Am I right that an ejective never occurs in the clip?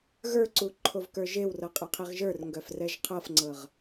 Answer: no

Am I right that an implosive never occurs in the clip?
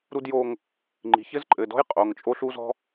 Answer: yes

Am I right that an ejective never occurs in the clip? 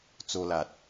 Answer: yes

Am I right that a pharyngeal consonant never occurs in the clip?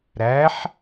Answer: no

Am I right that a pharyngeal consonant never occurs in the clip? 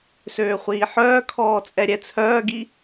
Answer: no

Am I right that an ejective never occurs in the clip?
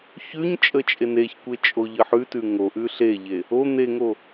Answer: no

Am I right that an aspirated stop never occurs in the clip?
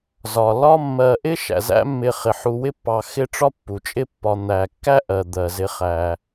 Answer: yes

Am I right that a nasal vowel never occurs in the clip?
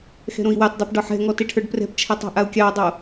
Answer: no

